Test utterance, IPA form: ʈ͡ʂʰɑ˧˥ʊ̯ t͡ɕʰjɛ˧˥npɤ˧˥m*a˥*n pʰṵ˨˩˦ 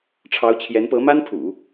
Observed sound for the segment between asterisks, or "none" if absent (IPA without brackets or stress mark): a˥